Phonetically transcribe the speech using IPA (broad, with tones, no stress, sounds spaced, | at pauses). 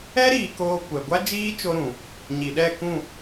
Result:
ɛ˦ ɾ iː˨ k oː˧ kʷ ɛ˨ ɡʷ a˦ d͡ʒ iː˦ t͡ʃ o˧ ɾ ũ˨ | ɲ i˨ ɗ ɛ˦˨ k ũ˦˨